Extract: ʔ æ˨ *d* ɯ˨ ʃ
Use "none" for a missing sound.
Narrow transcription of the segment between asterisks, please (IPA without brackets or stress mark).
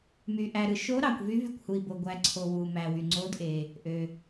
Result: ɾ